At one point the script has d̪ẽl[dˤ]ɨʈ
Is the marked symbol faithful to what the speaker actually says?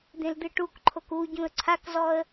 no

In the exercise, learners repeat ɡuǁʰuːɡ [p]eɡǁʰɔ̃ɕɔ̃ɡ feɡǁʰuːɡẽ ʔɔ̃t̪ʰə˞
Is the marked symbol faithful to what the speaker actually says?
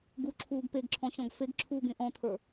yes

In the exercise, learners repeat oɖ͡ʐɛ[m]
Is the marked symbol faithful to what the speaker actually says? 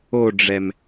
yes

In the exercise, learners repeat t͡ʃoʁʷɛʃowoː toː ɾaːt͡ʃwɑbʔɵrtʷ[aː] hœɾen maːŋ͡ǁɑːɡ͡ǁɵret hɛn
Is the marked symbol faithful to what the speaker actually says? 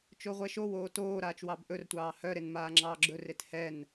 no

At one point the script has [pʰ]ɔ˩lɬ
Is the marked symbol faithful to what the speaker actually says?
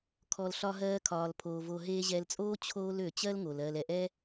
no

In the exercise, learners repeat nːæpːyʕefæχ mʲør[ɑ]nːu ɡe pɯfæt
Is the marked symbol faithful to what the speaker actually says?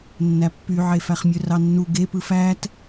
yes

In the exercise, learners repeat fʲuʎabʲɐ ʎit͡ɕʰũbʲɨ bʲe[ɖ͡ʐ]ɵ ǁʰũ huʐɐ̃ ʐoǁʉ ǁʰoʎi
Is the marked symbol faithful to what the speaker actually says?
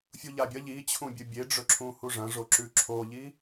yes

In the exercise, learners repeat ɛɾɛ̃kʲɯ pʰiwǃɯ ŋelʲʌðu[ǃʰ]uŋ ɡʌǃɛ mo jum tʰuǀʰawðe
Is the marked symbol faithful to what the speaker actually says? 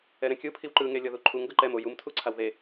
yes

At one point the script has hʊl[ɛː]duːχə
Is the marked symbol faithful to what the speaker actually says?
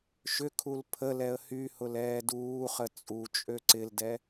yes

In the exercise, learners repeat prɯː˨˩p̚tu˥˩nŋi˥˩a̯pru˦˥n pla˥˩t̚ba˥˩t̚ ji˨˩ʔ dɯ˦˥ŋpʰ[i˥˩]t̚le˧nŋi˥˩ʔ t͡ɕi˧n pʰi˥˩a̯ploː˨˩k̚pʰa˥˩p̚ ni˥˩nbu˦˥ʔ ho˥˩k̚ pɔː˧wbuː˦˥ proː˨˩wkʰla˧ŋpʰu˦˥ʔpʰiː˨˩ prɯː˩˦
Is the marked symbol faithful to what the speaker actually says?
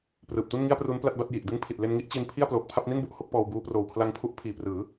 no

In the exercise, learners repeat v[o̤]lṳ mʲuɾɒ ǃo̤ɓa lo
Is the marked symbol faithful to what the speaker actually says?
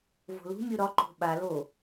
yes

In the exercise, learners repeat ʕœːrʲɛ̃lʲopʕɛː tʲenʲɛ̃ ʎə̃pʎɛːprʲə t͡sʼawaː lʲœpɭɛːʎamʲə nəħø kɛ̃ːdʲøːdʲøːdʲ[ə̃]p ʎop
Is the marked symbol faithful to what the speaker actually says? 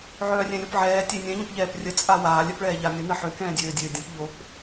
yes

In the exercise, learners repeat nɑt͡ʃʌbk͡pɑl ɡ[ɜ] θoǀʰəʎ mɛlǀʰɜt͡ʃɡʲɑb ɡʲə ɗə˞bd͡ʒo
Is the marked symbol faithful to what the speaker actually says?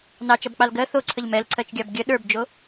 yes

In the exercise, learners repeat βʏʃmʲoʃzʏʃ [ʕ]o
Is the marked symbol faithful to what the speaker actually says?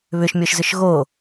no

